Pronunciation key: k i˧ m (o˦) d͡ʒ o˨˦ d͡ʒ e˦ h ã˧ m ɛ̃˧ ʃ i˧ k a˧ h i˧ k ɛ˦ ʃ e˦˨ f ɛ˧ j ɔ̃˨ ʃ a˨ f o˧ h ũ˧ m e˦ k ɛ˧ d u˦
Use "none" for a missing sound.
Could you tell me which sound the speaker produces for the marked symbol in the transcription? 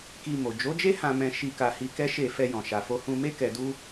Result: o˨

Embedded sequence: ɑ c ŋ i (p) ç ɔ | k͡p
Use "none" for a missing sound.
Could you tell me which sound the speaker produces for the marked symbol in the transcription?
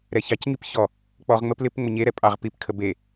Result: p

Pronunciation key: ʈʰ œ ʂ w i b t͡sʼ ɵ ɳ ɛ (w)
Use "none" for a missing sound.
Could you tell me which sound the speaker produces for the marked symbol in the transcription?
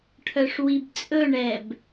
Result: b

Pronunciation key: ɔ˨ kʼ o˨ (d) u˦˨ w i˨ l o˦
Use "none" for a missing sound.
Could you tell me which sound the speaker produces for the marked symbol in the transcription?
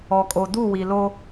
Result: d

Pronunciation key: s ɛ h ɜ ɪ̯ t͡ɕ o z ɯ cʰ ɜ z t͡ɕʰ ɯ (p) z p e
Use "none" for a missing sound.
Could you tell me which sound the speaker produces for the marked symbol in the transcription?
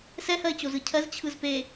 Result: none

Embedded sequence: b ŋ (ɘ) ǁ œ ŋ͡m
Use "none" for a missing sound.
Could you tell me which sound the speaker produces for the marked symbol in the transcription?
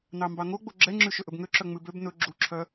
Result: ø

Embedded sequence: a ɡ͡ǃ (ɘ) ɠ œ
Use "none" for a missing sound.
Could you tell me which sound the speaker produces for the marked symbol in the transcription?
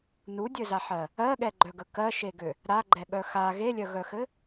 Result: ɛ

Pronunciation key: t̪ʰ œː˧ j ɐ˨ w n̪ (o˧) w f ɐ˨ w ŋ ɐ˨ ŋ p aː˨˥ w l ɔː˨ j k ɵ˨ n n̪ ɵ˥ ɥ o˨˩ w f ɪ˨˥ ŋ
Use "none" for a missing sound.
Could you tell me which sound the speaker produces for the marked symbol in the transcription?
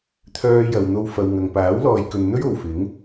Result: o˧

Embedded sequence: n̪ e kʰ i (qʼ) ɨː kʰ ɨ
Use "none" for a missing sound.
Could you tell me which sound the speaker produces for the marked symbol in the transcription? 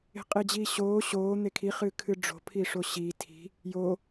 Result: χ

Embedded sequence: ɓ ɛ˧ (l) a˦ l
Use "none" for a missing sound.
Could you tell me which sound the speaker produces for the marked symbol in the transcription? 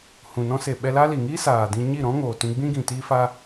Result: l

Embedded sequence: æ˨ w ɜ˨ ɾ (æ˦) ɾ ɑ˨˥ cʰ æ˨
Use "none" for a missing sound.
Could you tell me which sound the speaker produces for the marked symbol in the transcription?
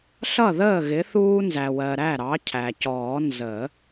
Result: æ˥˩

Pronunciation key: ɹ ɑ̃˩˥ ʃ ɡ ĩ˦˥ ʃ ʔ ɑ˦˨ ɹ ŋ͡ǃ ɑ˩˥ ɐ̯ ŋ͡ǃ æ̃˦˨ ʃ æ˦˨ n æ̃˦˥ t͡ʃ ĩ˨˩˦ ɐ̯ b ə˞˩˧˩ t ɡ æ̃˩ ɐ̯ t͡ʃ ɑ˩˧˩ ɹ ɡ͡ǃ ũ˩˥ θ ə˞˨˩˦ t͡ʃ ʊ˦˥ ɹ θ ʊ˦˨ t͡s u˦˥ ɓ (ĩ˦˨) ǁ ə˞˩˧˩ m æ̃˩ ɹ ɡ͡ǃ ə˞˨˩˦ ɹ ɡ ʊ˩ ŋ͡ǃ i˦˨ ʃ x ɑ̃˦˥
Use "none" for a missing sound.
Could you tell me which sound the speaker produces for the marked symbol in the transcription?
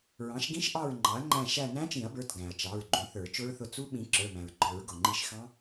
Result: ĩ˩˥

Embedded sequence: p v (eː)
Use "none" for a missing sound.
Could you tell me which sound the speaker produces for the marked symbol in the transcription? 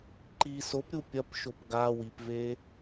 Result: eː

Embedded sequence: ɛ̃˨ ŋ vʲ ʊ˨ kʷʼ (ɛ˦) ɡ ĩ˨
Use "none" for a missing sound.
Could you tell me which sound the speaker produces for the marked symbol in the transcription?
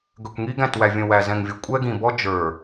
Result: ɛ˦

